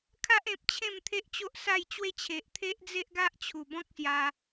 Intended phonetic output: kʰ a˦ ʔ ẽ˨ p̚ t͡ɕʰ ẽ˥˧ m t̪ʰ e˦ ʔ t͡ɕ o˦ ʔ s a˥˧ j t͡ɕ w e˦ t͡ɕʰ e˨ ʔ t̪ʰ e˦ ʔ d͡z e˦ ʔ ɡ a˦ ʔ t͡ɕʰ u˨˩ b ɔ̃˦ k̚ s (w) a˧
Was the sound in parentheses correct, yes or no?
no